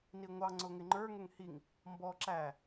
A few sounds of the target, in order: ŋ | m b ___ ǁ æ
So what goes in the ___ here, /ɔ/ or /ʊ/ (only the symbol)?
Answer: ɔ